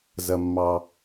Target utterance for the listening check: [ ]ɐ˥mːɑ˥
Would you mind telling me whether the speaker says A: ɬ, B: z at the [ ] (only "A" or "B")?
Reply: B